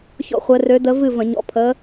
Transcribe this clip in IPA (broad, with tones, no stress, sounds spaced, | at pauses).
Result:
ç ɔ̰˥˨ χʷ ɛ˧˥ r ø˧˥ d ə˧˥ v ɨ˥˨ v ə̃˧˩˧ ɲ ɔ̰˧˥ pʰ ə˧˥